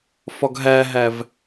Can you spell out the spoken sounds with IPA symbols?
f ɒ ɡ ɦ æ ɦ æ v

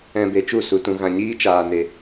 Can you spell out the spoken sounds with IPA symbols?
ɛ̃˧ b e˧ t͡ʃ u˦˨ s u˧ t ũ˧ ɣ ã˧ ɲ iː˦ t͡ʃ aː˧ n e˧

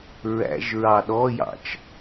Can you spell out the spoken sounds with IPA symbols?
ɹ æ̰ ʒ ɹ ɑ ɗ ɔ j ɑ̰ t͡ʃ

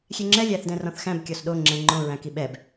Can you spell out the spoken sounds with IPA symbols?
xʲ e ŋ͡ǁ ɛ lʲ æ θ d ɛ̃ r ɔ̃ θ x æ̃ b kʲ ɔ s ɗ o ŋ͡ǁ ɛ̃ ŋ͡ǃ õ ɹ æ̃ k i ɓ ɛ b

